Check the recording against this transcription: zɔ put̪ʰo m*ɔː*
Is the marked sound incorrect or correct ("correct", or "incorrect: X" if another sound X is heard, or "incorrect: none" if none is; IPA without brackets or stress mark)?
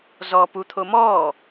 correct